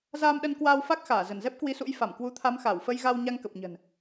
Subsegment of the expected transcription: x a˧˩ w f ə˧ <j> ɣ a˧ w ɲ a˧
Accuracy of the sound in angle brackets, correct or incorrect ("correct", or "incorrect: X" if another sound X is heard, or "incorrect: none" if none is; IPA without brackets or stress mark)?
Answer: correct